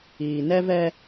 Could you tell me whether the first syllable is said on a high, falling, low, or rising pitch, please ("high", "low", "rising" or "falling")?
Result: low